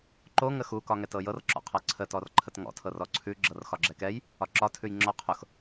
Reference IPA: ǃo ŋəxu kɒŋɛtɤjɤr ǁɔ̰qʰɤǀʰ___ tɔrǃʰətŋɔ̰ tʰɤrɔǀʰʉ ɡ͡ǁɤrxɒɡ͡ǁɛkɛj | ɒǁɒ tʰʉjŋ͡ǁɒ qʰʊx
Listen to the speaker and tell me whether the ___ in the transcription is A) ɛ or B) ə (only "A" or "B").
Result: B